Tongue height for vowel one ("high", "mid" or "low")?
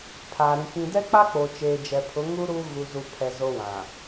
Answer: low